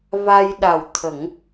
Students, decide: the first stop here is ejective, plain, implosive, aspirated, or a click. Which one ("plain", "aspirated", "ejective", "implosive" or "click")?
implosive